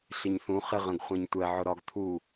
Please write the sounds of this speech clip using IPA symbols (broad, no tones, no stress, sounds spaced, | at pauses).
ɬ ɪ ɲ θ ũ χ ɪ ʁ ə̃ ɡ χʷ æ̃ ɲ tʷ ɛ ʕ ʊ ɾ ɒ ɡ t̪ʰ u